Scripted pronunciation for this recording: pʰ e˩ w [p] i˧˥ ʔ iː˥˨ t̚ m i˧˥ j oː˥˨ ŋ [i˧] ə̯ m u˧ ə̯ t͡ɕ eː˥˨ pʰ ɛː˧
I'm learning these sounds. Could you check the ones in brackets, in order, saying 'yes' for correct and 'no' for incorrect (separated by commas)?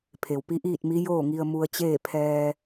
yes, yes